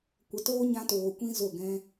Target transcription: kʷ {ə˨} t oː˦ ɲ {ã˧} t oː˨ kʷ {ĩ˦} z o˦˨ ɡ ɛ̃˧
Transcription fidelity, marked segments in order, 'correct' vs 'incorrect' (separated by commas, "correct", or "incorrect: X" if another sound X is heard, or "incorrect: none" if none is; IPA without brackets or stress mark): correct, correct, correct